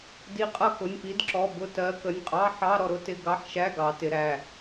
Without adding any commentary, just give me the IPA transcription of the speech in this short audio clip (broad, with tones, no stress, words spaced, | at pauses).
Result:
di˨˦qʼʌ˦˨ kʊ˩˧˩nʲpi˨˦dǁɔ˩˧˩ bʊ˦˨tɜ˨˦ kə˩˧˩nʲqʼɑ˧˥˧ ħɑ˧˥˧ ɾɔ˦˨ɾʊ˧˥˧tɪ˦˨ ɡɑ˧˥˧ħʃæ˧˥˧ ɡɑ˨˦tɪ˨˦ɾæ˩˧˩